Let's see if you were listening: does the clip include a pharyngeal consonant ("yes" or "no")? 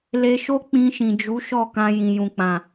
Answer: no